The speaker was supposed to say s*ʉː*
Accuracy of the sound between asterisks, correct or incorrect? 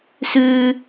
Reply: correct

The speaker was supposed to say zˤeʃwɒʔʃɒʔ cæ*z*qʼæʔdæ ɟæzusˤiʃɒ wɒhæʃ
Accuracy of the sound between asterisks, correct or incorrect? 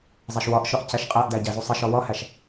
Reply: incorrect: ʃ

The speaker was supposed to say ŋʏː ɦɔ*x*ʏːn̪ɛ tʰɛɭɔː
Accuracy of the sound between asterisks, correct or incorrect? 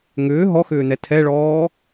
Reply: correct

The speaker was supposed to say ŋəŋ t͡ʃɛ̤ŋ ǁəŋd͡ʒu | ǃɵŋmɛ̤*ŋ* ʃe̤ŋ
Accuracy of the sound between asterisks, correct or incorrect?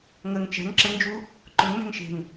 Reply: correct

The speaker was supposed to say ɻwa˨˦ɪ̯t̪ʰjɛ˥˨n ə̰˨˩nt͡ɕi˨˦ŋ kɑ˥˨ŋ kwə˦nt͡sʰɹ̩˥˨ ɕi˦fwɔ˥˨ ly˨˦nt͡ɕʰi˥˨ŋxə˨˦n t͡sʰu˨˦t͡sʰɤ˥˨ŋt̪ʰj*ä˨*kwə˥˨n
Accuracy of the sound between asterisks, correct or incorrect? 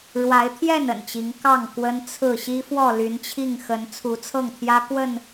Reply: incorrect: ä˦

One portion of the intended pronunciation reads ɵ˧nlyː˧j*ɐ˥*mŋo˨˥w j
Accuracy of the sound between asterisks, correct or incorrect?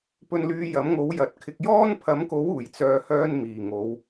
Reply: incorrect: ɐ˨˥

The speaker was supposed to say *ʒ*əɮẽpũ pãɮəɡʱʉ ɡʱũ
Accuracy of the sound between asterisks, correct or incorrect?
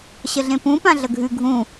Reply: incorrect: ɕ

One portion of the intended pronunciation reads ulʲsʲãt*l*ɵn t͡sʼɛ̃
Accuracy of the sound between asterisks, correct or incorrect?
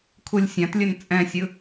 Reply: incorrect: lʲ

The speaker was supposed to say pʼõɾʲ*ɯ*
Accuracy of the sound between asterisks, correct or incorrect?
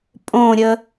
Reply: incorrect: ə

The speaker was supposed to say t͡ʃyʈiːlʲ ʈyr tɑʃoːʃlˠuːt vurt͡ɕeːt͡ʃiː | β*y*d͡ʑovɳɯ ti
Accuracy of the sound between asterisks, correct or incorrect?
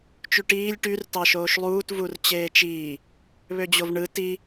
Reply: incorrect: ø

